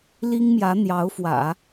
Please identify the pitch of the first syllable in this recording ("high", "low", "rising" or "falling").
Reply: high